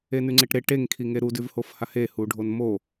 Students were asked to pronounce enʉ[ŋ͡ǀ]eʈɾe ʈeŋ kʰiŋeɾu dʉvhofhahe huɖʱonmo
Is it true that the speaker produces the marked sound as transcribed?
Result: yes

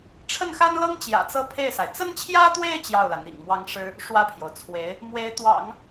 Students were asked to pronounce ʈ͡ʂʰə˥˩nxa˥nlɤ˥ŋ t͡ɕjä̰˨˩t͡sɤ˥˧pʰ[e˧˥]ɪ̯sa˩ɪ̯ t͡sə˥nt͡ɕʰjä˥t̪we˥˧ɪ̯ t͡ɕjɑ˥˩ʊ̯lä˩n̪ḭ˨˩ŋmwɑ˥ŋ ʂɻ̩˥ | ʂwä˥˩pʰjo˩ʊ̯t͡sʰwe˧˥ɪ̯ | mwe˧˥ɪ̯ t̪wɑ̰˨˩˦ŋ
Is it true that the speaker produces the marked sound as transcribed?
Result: no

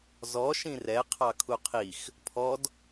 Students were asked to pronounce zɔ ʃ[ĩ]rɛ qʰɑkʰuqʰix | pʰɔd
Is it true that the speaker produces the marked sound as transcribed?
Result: yes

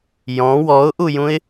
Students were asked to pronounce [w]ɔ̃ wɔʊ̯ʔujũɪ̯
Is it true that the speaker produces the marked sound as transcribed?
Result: no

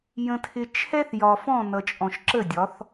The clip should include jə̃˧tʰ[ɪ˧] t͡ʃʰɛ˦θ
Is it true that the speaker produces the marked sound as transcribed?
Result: yes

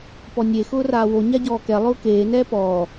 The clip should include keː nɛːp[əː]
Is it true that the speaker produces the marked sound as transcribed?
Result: no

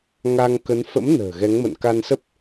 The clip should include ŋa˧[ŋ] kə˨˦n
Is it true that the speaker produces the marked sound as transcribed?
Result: yes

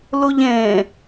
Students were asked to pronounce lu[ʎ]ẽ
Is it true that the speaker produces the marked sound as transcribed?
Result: yes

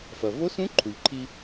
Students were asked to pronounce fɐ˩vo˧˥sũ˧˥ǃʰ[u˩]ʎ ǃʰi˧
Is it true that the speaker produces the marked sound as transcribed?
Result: yes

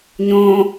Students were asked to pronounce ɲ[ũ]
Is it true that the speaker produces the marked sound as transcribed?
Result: no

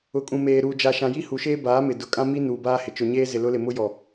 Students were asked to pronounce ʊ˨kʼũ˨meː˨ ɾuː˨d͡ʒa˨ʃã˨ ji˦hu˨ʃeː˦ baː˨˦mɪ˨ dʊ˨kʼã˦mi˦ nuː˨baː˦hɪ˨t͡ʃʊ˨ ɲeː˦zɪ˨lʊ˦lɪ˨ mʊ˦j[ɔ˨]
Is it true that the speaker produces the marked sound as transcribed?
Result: yes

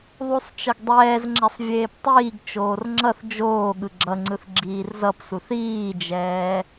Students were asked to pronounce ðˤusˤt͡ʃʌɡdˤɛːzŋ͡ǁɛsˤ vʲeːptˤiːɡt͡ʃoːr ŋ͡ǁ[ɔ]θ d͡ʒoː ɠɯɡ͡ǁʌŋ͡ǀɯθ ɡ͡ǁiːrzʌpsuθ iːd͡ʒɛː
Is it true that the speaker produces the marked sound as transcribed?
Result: no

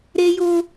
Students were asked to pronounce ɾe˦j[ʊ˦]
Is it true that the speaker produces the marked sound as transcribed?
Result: yes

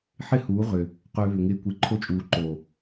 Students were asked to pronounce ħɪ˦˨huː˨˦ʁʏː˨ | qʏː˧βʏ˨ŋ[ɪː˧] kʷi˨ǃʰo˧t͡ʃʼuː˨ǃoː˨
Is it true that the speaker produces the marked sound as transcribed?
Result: yes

